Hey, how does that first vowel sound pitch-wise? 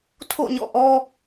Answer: falling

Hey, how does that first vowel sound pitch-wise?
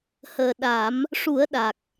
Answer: low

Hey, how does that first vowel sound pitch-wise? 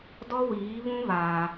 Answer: high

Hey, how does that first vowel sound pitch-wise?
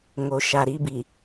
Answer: low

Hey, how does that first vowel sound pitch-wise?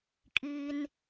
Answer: high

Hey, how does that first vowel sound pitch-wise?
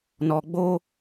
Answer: low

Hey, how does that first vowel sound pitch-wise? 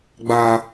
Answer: low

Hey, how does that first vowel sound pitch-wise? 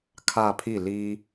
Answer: falling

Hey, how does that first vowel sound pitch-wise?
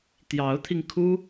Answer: rising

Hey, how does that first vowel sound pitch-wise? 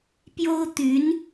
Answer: high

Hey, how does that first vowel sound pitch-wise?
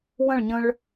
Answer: falling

